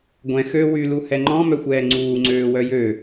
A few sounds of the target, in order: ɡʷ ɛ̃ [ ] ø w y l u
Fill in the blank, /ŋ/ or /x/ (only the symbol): x